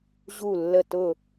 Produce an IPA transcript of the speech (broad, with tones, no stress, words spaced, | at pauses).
ʑu˦˨lːə˦˨tʊ˦˨